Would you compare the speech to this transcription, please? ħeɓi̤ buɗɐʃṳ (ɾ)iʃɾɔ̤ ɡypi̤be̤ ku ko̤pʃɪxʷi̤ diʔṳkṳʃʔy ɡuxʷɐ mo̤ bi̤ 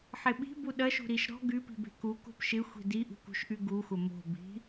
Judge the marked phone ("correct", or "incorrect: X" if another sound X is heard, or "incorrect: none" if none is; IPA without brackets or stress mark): correct